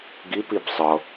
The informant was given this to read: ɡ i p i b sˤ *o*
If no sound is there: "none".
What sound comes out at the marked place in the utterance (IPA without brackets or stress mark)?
ɤ